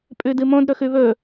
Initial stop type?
ejective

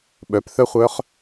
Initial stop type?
implosive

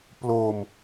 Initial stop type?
plain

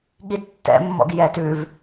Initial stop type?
implosive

